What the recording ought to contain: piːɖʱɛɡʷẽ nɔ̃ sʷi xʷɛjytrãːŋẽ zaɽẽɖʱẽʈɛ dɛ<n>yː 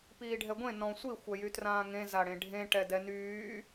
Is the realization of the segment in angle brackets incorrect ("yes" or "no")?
no